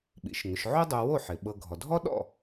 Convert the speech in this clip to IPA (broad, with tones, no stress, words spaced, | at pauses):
ɓḭ˩˧ʃŋʏ˩˧ʃ ʕo˥dˤo˧wo˥˩ ħɪ˩ ɓɤ˧ ɡʱɔ˩dʱɔ˥ɗɔ̰˥˩